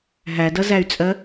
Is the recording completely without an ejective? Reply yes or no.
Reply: no